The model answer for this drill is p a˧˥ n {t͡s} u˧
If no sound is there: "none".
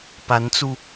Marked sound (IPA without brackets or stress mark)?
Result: t͡s